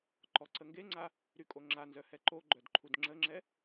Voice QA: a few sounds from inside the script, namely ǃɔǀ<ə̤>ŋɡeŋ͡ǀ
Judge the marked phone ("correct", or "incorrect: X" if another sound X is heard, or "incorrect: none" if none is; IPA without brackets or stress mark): incorrect: ə